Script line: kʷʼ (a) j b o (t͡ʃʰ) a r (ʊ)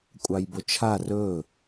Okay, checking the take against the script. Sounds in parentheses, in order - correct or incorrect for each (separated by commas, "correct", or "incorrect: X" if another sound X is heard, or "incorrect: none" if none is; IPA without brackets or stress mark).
incorrect: ɑ, correct, incorrect: ɵ